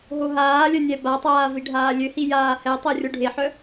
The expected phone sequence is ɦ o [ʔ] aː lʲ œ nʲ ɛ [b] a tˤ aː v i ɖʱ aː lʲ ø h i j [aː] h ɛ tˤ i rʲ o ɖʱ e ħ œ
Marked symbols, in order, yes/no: no, yes, yes

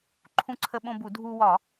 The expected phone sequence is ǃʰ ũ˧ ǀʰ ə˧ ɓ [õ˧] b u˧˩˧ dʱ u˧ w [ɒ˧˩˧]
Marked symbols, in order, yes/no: yes, yes

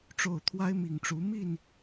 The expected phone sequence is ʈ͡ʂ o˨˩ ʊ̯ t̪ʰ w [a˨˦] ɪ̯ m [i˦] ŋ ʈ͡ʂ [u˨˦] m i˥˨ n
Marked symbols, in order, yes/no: no, no, yes

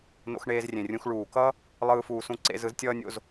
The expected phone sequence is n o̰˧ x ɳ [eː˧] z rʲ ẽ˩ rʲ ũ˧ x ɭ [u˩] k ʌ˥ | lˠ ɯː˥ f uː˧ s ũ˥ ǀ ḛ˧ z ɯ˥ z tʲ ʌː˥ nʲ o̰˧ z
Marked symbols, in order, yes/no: yes, no

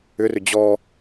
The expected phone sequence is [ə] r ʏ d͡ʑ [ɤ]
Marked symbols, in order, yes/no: no, no

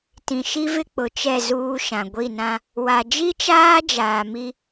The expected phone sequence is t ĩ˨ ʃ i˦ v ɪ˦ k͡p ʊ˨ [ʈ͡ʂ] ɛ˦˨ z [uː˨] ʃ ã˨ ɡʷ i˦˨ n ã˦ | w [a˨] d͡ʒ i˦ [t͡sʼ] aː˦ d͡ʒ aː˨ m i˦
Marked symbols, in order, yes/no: no, no, yes, no

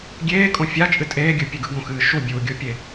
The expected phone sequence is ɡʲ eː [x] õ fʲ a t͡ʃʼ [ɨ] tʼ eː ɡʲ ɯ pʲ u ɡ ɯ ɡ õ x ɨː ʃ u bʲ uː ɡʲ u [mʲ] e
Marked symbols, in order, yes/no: no, yes, no

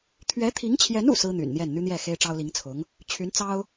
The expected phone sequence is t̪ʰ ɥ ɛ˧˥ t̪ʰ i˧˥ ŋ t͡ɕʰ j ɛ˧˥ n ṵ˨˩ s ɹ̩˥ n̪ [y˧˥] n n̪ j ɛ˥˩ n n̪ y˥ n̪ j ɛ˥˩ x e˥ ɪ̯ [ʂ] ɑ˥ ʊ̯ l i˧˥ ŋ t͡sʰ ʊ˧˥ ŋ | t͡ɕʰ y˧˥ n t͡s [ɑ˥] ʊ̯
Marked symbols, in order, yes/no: no, no, yes

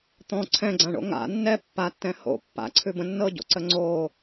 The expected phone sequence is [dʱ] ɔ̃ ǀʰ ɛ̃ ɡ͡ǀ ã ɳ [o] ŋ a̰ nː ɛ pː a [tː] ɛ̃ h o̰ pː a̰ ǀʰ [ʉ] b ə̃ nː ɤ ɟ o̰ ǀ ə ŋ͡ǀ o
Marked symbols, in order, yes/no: no, no, yes, yes

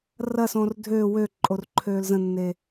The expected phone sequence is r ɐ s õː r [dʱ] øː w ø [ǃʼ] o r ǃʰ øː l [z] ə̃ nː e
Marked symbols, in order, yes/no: yes, yes, yes

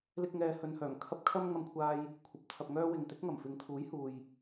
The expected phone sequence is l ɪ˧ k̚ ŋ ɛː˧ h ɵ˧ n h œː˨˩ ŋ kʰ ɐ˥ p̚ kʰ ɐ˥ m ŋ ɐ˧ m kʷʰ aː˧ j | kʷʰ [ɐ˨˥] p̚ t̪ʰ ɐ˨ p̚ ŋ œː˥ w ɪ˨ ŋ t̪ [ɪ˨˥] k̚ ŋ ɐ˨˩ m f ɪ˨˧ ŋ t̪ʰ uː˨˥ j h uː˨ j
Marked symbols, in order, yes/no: yes, yes

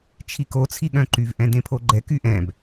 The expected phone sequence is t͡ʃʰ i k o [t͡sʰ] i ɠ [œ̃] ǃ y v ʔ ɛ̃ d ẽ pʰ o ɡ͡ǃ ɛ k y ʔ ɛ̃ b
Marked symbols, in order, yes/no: yes, yes

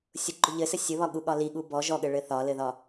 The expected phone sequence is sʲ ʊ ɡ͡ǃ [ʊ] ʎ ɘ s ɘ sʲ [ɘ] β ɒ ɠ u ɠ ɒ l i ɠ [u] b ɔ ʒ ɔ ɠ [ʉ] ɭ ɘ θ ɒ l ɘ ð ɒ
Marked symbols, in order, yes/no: yes, yes, yes, no

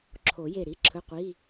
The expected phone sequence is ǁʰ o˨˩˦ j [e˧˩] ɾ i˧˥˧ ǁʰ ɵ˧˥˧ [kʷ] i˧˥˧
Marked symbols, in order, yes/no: yes, no

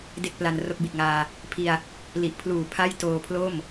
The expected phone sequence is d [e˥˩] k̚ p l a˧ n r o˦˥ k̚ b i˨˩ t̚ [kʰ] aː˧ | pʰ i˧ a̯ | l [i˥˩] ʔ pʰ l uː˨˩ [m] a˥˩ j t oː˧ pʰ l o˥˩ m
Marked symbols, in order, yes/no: yes, no, no, no

